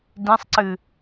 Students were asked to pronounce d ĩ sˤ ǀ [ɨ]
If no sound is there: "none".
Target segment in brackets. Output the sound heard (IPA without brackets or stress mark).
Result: ɨ